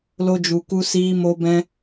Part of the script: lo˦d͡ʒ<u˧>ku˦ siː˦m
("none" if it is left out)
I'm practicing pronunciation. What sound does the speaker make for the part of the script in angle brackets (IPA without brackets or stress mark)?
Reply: u˧